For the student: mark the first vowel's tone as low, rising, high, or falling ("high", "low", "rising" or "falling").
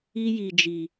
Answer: high